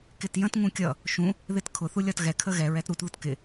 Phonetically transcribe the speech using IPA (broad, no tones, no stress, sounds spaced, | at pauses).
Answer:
k ɪ t j ə̃ t ŋ ũ kʲ ʌ | ʃ ũ | ð ɪ t kʰ ʊ θ u lʲ ɒ t ɣ ɛ kʰ ə ɣ ɛ ɹ ɛ t ɾ u t ð ʊ t k ɪ